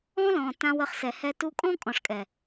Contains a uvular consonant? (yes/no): yes